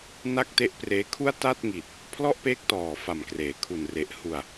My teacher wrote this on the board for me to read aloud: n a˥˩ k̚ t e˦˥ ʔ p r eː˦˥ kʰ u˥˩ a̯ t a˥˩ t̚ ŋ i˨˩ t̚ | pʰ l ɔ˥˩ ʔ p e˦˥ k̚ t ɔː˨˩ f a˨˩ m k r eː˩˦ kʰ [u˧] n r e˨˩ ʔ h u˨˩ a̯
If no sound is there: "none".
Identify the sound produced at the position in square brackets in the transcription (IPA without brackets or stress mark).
u˨˩